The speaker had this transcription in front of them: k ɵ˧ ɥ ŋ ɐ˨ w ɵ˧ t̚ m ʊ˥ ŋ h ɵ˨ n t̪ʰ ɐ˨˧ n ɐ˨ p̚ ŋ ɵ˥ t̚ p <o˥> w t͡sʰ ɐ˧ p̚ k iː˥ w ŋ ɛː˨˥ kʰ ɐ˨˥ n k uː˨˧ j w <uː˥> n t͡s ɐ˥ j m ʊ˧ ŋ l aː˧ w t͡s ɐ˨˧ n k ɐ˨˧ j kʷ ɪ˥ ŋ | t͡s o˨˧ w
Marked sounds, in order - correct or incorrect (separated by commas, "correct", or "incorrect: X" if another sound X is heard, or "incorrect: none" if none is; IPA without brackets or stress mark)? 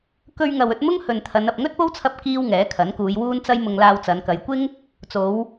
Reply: correct, correct